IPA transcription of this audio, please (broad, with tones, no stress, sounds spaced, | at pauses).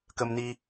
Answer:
k ə˧ m n i˧